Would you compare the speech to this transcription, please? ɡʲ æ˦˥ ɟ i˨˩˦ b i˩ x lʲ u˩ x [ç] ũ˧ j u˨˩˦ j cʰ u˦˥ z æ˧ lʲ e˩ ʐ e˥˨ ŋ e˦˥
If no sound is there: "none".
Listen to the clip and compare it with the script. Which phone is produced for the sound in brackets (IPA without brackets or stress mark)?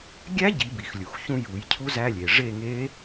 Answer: ç